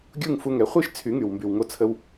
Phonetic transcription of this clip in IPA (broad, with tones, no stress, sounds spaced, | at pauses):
ɡʲ u˥˩ ŋ f u˧ ŋ ɛ˩˥ χʷ i˥ ʃ t͡sʰ y˩˥ ŋ y˩ w m b y˩ w ŋ o˧ t͡sʰ ə˧ w